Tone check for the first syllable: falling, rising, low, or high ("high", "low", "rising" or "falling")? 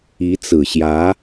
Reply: rising